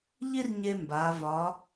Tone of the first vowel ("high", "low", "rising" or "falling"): high